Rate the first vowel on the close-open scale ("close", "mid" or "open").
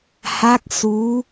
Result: open